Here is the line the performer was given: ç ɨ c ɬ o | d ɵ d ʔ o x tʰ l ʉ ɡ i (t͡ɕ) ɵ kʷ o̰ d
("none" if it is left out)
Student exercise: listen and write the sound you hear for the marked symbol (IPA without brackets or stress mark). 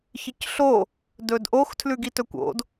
t